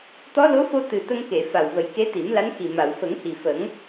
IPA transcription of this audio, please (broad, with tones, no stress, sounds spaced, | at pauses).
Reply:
t̪ ɔ˧˥ l o˧˥ f o˧ t̪ ɨ˨˩ t̪ ə˧ ŋ k e˨˩˨ f a˨˩ w v ə˨˩˦ j k e˧˥ t̪ i˨˩˦ m l a˧˥ n x i˨˩ m a˨˩˨ w f ə˨˩˦ ŋ h i˨˩ f ə˨˩˦ ŋ